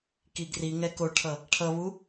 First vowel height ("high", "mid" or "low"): high